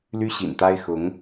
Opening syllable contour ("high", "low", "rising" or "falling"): high